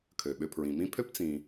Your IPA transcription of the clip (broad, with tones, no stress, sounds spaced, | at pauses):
kʰ ø˩ ɓ ʏ˨ pʰ ɹ ĩ˩ m ĩ˥ pʰ ø˥ p t͡s ĩ˨